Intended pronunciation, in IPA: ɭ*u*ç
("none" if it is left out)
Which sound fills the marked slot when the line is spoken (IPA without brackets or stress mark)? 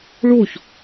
u